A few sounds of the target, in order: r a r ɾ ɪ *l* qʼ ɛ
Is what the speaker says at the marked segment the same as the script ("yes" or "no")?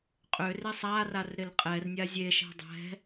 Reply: yes